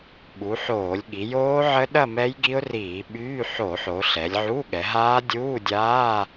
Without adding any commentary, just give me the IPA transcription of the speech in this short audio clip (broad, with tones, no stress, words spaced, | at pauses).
ɓu˩˧ħoː˧˩˧lʲɠi˩˧ joː˦˥ʕə˦˥ ɗɐ˥˧mɛ˦˥j ɡi˦˥ʊ̯riː˧˩˧ ɓyː˧˥˧ ħo˧˩˧ħo˩˧ ɬɛ˩˧lʲʕu˧˥˧ɠɛ˩˧ ɦaː˦˥ dʲuː˧˥˧dʲaː˧˥˧